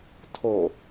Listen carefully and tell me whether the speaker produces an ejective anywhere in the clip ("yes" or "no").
no